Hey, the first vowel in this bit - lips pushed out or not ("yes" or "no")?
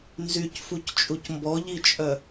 yes